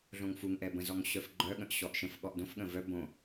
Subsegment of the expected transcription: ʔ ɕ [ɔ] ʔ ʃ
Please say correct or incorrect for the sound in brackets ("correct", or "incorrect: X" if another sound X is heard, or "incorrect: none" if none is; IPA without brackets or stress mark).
correct